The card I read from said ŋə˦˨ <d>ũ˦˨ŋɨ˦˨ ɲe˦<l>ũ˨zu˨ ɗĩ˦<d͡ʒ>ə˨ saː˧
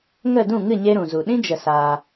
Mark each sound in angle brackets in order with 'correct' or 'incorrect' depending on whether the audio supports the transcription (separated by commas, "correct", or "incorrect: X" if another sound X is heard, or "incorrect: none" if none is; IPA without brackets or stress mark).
correct, incorrect: ɾ, correct